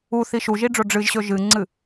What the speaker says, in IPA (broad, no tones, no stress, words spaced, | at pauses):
uθi ʃuʒiɖ͡ʐo ɖ͡ʐɨʒɕɵ ʒɨŋ͡ǀɨ